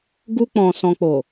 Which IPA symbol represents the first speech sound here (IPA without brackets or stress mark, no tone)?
ɡ